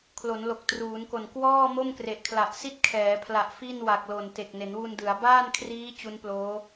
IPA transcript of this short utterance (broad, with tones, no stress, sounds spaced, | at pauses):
kʰ l o˩˦ n l o˨˩ k̚ t r uː˩˦ n k o˨˩ n k w ɔː˥˩ m o˥˩ m k r e˨˩ ʔ kʰ l a˨˩ ʔ s i˥˩ t̚ kʰ ɛː˩˦ pʰ l a˨˩ ʔ f i˥˩ n w a˨˩ k̚ l o˨˩ n t e˨˩ k̚ n e˩˦ n w u˧ n d ɯ˩˦ a̯ b aː˥˩ n kʰ r iː˦˥ t͡ɕ u˦˥ n p l oː˦˥